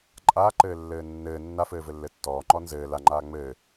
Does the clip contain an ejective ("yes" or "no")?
yes